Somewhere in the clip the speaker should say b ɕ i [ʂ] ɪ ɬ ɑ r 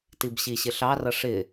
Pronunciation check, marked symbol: incorrect: ɕ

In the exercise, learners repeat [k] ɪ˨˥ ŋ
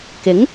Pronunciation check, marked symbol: correct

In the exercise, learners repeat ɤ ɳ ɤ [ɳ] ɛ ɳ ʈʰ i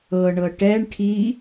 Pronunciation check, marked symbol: incorrect: ʈ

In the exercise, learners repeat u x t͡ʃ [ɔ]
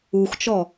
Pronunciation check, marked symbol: correct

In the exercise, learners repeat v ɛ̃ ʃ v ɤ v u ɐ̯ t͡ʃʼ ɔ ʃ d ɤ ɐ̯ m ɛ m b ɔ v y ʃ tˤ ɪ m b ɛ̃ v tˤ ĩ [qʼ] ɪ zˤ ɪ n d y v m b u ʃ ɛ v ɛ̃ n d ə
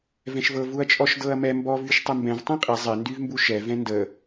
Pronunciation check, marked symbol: correct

